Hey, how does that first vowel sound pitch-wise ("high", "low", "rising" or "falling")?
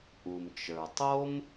low